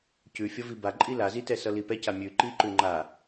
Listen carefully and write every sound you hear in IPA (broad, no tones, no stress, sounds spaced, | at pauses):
c ʉ fʲ ʌ v i b a ǃʼ i l a z i t ɛ s ʌ l i p ɛ c a mʲ ʉ ǃ i ǃ ʉ ŋ͡ǃ a